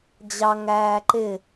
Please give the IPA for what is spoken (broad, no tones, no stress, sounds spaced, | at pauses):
d͡ʑ ɑ ŋ æː ǃ ɪ